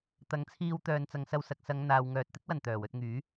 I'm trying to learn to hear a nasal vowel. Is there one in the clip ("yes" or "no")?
no